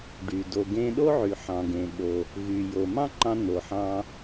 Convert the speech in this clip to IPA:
ɖ y˩ d o˩ ɡ ẽ˧ ɗ o˥ ʕ y˩ ħ ɑ̃˩ ɡ ẽ˩ ɓ o˩ | ɣ y˩ j o˩ m ɑ̃˥ ǃ ɑ̃˧ n̪ o˩ ħ ɑ̃˧

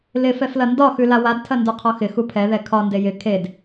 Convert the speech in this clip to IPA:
l ɪ f ɛ f l ɐ n d ɒ x ʉ l a w a d tʰ ɐ n d u qʰ ɒ x ɪ x u pʰ ɛ ð ɛ kʰ ɒ n d e j ɪ kʰ e d

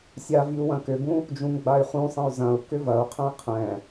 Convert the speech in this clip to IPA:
sʲ a v i u̯ w ɐ̃ k ʏ b ũ | d͡ʒ ũ ŋ ɡ͡b a y̯ χ ũ sˤ ɐ̃ y̯ z ɐ̃ u̯ k ʏ v ɐ u̯ qʰ ɛ̃ i̯ qʰ ɛ̃

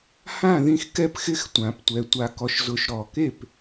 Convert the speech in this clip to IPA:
h ã˥˨ ð ĩ˥˨ x k ɛ˥˨ p x ɪ˥˨ x tʷ ã˨ p tʷ ɛ˨ tʷ a˨ k ɔ˨ ʃ z ʊ˨ ʃ ɾ ɔ˨ k e˥˨ p

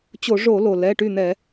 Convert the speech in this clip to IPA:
t͡ɕ o˧˩˧ ʐ o˧˩˧ l o˩ l ɛ˩˧˩ ʈ y˥˩ n̪ ɛ˧˩˧

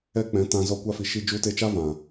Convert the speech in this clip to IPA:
ɛ˦ k͡p ɛ̃˨˦ t ã˧ z ɔ˧ kʷ a˧ f i˨ ʃ i˧ d͡ʒ u˧ t e˧ t͡ʃ a˦ v ã˨

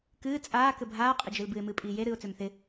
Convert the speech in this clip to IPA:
k ɨː t͡sʼ aː k ɘ bʱ aː qʼ ɪ d͡ʒ ɨ l b ɨ ɪ̯ m ɨː pʼ iː j e ɾ ɨː ʊ̯ t͡s ø m θ ɪ

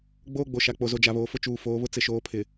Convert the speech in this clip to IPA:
ɡ͡b oː˦ ɡ͡b o˨ ʃ a˨ k͡p o˨ z o˨ d͡ʒ a˨ β oː˨ f ʊ˦ t͡ʃ uː˨ f oː˨˦ β ʊ˦ t͡s ɪ˨ ʃ oː˨˦ pʰ ɪ˨

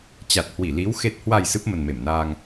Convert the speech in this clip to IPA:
t͡ɕ a˨˩ t̚ h w i˧˩ l i˨˦ w x e˨˩ t̚ h w a˨˩ j s ɨ˦˥ p̚ m ə˨˩ n m e˧˩ m n aː˧ ŋ

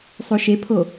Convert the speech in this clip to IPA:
sˤ o ʃ e pʰ o

